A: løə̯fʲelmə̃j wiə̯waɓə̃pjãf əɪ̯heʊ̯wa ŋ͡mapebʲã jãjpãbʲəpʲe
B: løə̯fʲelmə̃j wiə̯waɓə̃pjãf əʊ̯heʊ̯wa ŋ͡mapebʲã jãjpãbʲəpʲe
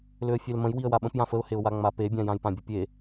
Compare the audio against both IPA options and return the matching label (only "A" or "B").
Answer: B